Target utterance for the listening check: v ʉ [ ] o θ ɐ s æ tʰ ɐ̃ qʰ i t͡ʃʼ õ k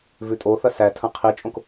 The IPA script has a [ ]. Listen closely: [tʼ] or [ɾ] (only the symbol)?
tʼ